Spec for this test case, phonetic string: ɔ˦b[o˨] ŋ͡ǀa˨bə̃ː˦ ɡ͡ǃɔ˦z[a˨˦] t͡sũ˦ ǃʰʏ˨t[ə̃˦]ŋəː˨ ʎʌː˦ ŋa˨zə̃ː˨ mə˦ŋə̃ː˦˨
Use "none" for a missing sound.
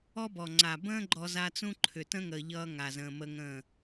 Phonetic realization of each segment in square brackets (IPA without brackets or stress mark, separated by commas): ɔ˨, a˦, ə̃˦